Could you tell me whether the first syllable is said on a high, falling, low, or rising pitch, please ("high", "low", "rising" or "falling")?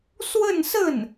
falling